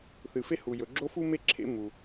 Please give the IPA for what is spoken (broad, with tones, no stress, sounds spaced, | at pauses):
θ ɨ˩ f e˥ h u˩ j ɵ˩ ɡ͡ǁ o˥ f u˥ m e˥ ǁʰ ḛ˥ m u˩